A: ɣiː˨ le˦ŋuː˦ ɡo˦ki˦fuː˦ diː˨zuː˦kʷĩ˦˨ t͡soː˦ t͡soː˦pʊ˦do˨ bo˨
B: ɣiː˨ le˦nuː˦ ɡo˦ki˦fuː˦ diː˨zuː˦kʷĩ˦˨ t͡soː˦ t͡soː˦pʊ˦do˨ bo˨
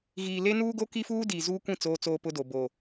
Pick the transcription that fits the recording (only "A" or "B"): B